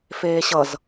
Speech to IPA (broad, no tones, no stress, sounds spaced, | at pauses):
f eː ɕ ʌ z